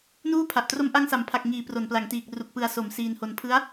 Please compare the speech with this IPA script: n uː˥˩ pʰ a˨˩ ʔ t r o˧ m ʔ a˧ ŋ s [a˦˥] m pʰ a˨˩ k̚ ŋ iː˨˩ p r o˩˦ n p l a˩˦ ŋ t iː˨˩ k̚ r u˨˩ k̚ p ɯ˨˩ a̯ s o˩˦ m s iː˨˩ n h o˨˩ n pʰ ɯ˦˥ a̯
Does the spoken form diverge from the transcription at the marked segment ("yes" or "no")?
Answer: yes